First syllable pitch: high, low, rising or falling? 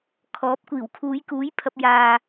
rising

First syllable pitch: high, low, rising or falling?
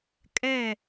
falling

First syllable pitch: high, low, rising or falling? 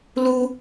high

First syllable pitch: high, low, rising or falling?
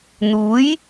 rising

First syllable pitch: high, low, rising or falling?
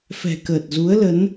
low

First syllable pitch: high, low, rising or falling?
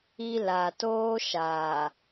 high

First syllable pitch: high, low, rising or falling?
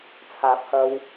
rising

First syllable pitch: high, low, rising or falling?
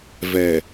low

